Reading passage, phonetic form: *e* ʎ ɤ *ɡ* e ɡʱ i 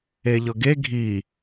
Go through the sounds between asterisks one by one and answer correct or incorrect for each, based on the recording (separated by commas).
correct, correct